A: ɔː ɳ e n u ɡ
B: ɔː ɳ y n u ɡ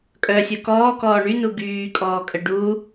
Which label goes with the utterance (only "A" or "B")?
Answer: B